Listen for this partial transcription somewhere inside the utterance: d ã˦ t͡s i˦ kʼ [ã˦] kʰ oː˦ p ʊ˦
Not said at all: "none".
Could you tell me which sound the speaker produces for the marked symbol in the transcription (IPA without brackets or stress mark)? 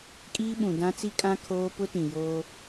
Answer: ã˦